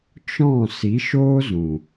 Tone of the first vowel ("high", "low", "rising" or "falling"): falling